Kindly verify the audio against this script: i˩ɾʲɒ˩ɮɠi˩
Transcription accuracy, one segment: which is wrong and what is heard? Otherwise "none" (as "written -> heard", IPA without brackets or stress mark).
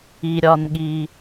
ɮ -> n